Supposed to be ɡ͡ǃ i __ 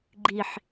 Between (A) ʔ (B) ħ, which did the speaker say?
B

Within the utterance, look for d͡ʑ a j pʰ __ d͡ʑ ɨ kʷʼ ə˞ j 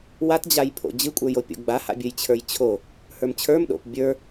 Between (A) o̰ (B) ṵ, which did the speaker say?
A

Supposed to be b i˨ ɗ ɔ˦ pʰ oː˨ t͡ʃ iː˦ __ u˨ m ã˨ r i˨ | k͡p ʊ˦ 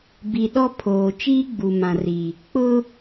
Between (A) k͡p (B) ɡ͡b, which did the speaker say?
B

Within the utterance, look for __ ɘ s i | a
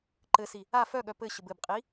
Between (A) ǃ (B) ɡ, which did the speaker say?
A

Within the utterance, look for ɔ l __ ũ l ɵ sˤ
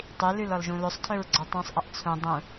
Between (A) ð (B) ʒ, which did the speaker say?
B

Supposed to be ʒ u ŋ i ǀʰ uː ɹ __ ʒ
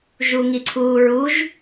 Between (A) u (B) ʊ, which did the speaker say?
A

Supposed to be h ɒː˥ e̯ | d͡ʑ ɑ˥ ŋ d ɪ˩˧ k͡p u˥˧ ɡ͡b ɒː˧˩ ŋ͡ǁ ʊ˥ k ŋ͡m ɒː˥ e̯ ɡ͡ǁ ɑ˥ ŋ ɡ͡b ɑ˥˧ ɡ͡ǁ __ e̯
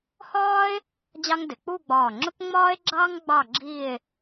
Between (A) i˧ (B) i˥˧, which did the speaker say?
B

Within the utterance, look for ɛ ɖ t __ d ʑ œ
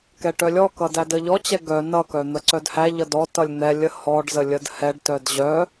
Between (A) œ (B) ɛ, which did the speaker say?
A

